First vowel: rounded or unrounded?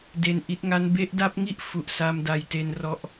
unrounded